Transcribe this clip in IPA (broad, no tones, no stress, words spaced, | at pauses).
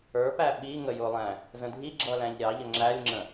ə˞pæ ɓi ŋəjʊlˠæ̃ | zə̃dʱiɡ͡ǁʌ læ̃ʎɾʲɑʎə ŋ͡ǁælʲŋ͡ǁə̃